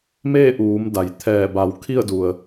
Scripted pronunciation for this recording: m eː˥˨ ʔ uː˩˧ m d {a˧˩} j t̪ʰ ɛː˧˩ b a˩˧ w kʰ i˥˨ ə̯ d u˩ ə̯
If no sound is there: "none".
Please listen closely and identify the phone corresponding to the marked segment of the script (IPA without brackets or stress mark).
a˩